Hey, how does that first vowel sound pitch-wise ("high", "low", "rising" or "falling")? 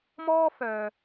high